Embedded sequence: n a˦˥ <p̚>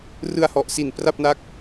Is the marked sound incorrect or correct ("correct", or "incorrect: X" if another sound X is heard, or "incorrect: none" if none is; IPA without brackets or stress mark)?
incorrect: k̚